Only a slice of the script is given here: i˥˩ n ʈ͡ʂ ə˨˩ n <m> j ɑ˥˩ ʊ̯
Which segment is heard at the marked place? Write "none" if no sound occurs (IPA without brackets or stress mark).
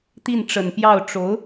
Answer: p